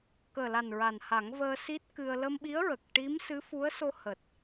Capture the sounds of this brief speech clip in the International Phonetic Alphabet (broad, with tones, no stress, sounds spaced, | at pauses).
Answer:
k əː˨˩ l a˨˩ n ɹ a˨˩ n h a˨˩˦ ŋ v əː˧ s i˦˥ t̚ k ɨ˧ ə̯ l ə˧ m ɓ i˧˥ ə̯ ɹ ə˨˩ k̚ ʈ i˧˥ m s ɨ˧˥ f u˧˥ ə̯ s o˧ h əː˨˩ t̚